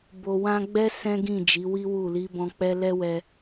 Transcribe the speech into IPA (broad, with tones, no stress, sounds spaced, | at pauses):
b o˨ w ã˧ ɡ͡b ɛ˦ s ɛ̃˦ ɡ ĩ˦˨ d͡ʒ i˨˦ w i˦ w u˦˨ l i˨˦ b ɔ̃˧ k͡p ɛ˦ l ɛ˦ w ɛ˧